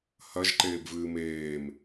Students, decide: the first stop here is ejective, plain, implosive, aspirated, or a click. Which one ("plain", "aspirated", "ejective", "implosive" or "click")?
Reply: click